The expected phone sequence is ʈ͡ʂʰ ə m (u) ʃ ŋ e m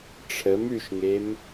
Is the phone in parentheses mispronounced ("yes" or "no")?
yes